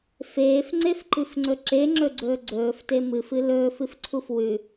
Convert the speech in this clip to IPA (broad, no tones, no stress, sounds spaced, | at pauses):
f eː f ŋ͡ǀ e f ǃ ɨ f ŋ͡ǀ ɵ ǁ e ŋ͡ǁ ɵ ɡ͡ǀ ɵː ɡ͡ǀ ɵː f t e m ɨ f ɨ l ɵː f ɨ f ǀʰ u f w ʉ